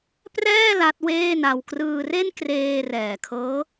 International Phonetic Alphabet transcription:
prɛː˥˩ la˦˥t̚weː˥˩na˧w krɯː˧re˥˩nkreː˧ rɛː˨˩kʰɤː˦˥

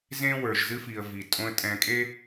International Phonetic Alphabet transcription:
zẽ˥wə˞˩ʒzɨ˥fi˩ə̯ vi˩tʼõ˥ə̯tʼɛ̃˧ kʼe˥

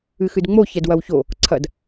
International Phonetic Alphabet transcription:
ɨxɨdŋ͡mo çɛdwɐwço | ǀʰɐd

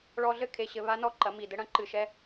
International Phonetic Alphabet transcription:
ɭɔ˧ɮɘ˦ kʰe˧ɕɘ˧βa˦nɔ˦ ǃɐ˨˦mi˨dɘ˦ ɽɐ̃˦ǃɨ˧ʃɛ˦

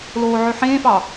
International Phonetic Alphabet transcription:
loːʕøħẽːfɑ

